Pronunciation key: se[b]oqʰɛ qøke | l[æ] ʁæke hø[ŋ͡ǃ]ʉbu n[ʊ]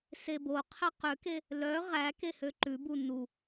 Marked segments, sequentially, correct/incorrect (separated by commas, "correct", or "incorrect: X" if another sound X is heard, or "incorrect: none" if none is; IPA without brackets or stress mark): correct, incorrect: œ, incorrect: ǃ, incorrect: u